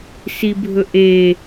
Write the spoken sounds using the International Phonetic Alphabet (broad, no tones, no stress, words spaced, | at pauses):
sibʱɵʔe